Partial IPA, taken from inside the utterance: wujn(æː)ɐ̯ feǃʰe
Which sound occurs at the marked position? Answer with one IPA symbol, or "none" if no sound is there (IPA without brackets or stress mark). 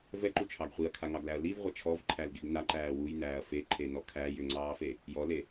æː